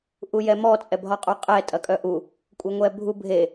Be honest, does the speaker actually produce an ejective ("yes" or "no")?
yes